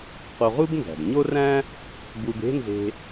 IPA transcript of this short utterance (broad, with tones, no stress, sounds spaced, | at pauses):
q o˧ ʁ u˥ b n z æ̤˩ b ɲ o˥ r æ̃˥ | b u˧ b e̤˥ n z e̤˧